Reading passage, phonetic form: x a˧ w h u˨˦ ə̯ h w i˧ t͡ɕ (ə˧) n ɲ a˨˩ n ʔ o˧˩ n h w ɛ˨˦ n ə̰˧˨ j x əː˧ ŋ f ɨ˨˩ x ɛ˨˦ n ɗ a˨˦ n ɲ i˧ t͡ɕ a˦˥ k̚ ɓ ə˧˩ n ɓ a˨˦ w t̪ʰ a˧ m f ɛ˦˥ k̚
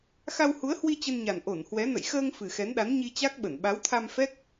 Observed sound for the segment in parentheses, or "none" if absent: ə˧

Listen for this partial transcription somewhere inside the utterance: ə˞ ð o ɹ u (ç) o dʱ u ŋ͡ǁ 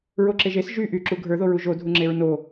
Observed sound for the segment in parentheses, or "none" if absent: ʒ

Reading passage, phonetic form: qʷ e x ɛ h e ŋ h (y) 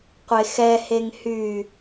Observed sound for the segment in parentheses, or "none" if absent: y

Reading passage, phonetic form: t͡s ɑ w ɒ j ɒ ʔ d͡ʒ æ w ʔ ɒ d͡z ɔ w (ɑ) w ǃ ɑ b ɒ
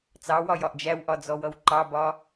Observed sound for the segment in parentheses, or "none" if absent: ʌ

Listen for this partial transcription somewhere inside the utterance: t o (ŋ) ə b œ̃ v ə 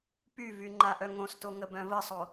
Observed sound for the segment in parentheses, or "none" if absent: ŋ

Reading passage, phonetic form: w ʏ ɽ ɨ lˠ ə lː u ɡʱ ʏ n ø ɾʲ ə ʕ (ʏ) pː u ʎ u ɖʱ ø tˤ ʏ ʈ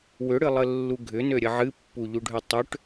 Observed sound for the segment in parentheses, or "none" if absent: ɨ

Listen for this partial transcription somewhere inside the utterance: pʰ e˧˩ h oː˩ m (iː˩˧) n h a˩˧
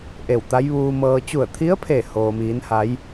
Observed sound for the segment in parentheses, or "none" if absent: iː˩˧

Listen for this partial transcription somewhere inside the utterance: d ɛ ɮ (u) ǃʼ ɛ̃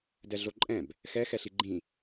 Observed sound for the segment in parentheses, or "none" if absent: o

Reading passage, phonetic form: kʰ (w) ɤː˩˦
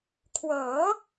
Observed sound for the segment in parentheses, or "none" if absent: w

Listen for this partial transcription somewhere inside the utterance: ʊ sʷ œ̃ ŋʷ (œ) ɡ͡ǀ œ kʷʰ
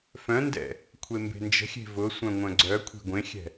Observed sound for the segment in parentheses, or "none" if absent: œ̃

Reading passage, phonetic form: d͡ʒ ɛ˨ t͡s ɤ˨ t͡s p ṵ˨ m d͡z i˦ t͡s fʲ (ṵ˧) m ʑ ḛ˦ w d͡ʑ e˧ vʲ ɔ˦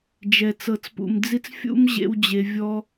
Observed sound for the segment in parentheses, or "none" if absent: ṵ˦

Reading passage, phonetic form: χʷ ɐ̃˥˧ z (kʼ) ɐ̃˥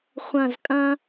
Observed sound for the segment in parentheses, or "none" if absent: kʼ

